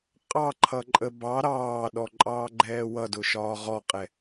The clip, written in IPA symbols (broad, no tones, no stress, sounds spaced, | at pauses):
qʼ ɑ ǃʰ ʌ ǃʼ ə b ɑ ɾ ɑː ɗ ɔ ǃʼ ɑː ɡ͡ǃ ɛː w ʌ d ʊ ʃ ɒː ʁ ɔ qʼ ɛ